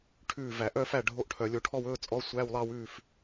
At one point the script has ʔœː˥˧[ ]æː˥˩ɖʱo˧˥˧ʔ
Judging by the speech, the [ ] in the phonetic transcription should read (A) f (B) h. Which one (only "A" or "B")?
A